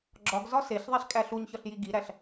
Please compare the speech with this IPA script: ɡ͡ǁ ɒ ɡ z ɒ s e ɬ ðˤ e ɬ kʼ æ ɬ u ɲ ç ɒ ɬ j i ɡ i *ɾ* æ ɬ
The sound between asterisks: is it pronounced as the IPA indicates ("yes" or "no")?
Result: yes